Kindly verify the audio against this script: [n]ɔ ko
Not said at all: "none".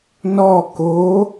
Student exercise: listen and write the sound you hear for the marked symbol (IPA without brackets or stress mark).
n